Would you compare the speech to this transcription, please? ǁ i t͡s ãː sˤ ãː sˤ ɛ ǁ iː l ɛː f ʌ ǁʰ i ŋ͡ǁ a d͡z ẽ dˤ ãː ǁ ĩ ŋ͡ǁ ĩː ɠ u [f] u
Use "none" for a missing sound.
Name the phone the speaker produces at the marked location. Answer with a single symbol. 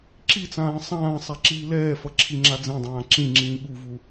v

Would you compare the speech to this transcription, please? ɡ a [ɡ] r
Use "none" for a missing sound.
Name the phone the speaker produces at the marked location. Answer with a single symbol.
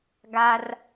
none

